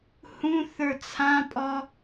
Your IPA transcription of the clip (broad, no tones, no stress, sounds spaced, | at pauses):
h ũ θ ə˞ t͡sʰ ã pʼ ɔ